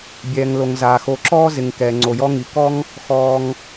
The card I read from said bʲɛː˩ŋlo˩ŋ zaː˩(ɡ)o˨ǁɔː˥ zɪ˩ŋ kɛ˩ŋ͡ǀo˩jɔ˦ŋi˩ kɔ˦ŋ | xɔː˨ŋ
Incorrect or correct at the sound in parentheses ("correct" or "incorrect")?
incorrect